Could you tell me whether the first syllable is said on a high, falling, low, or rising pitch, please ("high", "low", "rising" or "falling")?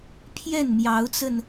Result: falling